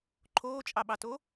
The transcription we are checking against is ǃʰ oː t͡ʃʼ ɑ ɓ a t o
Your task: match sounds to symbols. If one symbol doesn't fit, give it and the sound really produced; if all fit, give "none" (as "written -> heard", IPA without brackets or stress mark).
a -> ɑ